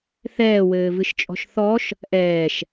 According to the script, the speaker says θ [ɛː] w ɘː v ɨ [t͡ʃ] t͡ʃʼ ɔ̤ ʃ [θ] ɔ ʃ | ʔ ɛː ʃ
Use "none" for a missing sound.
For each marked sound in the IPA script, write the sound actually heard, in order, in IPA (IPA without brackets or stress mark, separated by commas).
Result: ɛː, ʃ, θ